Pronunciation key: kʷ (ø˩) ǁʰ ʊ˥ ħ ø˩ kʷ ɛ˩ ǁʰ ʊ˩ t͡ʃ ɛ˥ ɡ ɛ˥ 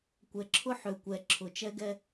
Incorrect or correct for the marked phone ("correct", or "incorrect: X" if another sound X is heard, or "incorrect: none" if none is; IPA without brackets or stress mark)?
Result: incorrect: ɛ˩